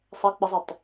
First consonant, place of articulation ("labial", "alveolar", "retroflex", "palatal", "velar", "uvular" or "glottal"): alveolar